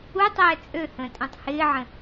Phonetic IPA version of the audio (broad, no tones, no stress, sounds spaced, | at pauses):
u tˤ ɛː t͡sʼ ø h ə̃ː tʼ ɛ̃ tˤ h ɪː ʕ ə̃